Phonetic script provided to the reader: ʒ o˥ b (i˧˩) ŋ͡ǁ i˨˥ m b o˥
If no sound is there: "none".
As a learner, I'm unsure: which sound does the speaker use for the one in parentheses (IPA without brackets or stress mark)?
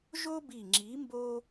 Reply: i˧˩